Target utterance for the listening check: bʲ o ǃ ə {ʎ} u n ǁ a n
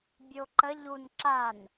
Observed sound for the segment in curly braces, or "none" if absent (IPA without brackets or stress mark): ʎ